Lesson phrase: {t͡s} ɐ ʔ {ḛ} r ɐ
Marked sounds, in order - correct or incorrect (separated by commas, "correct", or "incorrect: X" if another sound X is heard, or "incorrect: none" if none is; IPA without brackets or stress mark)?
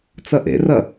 correct, correct